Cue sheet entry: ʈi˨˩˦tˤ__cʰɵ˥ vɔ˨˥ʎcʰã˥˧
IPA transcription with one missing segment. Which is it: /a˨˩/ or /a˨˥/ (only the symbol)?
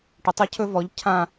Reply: a˨˥